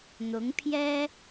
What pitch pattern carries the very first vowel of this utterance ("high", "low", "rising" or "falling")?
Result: rising